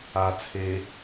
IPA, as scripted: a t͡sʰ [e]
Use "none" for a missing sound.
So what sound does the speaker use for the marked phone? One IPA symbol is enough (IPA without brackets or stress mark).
e